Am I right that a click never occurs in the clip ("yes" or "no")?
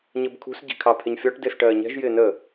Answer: yes